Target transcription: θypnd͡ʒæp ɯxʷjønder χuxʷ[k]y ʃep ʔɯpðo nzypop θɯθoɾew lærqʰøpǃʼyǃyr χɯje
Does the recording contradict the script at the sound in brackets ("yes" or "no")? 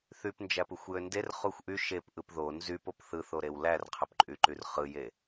yes